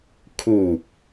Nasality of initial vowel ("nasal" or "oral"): oral